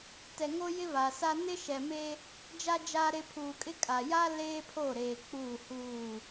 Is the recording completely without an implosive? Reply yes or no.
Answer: yes